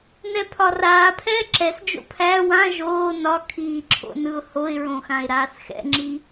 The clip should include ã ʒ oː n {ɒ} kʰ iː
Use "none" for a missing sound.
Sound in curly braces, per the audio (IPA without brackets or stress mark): ɒ